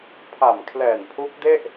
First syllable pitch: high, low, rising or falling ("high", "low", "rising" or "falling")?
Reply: low